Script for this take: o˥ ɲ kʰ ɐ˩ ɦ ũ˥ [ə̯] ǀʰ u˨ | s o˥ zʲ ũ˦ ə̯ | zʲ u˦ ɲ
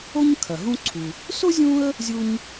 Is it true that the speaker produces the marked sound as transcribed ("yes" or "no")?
no